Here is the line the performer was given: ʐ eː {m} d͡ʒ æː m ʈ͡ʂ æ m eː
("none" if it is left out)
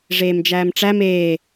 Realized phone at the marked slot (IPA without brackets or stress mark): m